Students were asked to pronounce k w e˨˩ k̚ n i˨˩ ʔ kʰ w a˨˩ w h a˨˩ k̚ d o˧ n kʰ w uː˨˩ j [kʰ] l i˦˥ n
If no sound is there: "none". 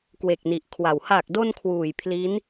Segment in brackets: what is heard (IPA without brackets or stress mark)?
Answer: pʰ